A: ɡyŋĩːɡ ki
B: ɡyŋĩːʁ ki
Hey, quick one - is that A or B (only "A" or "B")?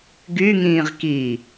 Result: B